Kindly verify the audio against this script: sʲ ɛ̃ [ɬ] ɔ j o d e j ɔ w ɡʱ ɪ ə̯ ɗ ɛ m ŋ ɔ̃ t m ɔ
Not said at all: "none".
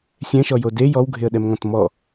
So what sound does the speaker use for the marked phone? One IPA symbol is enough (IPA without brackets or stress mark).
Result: ʃ